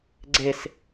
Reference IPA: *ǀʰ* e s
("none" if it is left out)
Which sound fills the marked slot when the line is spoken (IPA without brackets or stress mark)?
ɡ͡ǀ